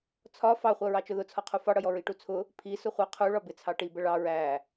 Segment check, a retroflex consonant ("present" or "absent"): present